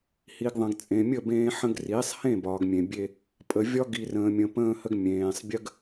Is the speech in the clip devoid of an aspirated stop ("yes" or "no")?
yes